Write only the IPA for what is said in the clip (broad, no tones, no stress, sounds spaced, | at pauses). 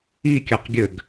i kʲ a q ɡʲ ɘ ɡ